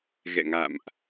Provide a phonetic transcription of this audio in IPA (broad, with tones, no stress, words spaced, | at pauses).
ɣɛ̰˧˨ŋa̰˧˨mʔ